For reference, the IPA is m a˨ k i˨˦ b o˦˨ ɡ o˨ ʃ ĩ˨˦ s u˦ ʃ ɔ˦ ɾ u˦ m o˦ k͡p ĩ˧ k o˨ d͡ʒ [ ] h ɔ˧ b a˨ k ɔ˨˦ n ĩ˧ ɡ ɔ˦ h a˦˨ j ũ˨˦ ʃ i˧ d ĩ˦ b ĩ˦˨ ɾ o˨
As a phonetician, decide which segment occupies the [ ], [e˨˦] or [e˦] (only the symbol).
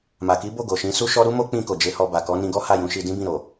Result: e˨˦